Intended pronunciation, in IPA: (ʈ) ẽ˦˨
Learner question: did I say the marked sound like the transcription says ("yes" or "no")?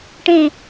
yes